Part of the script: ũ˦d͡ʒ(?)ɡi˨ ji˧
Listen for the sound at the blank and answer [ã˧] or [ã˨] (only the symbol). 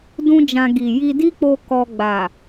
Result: ã˧